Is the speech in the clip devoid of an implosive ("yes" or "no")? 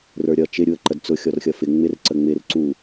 yes